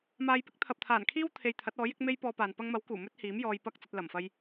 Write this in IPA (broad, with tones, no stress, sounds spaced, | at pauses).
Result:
m aː˨˧ j p ɪ˨˥ k̚ t̪ʰ ɐ˨ p̚ t̪ʰ aː˨˩ n kʰ iː˥ w t̪ʰ e˧ j t̪ʰ ɐ˨˥ t̚ ɔː˨˥ j ɪ˧ k̚ m e˥ j p ɔː˧ p aː˨ n p ɐ˧ ŋ m ɐ˨˥ w k uː˨˩ m ɵ˥ t̚ h iː˨˥ m j ɔː˧ j p ɐ˥ k̚ t͡s ɐ˧ t̚ l ɐ˨˩ m f ɐ˧ j